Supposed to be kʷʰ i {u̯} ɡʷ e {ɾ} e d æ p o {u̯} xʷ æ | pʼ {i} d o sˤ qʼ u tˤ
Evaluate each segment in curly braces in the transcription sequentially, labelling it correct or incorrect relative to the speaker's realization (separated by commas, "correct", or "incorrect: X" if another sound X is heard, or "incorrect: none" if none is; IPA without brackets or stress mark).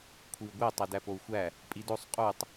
correct, incorrect: tˤ, correct, correct